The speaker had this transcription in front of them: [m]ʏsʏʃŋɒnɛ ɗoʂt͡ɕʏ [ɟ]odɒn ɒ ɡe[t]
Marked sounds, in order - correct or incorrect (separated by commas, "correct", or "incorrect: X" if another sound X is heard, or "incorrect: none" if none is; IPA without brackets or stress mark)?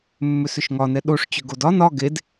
incorrect: mː, incorrect: ɡ, incorrect: d